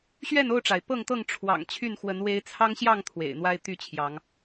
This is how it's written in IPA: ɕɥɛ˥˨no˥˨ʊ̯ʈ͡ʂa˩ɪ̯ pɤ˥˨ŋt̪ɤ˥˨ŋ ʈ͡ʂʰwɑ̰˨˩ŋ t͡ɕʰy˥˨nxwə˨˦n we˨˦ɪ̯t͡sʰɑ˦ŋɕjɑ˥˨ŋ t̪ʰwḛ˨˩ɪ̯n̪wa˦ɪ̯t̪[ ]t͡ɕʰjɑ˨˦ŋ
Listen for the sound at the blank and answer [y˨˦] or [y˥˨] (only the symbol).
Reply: y˥˨